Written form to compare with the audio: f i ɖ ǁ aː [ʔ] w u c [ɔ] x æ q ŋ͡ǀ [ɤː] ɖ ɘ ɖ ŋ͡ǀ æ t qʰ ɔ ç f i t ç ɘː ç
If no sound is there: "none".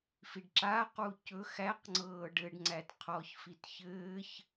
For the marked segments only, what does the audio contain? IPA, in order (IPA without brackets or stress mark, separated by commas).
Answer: q, ɵ, ɤː